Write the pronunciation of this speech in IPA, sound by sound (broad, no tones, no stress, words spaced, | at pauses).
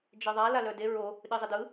d͡ʒeðˤa lalœde ɹo | ɗɨzˤɘdɯ